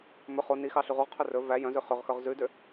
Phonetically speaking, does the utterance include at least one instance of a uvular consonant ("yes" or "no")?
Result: yes